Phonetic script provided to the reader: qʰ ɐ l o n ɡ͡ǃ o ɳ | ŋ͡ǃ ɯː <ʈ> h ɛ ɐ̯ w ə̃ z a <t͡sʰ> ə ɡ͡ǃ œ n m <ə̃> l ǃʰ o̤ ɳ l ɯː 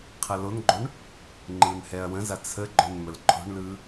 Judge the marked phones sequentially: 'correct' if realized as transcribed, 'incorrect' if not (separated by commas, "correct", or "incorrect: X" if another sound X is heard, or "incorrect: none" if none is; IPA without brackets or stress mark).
incorrect: n, correct, incorrect: ə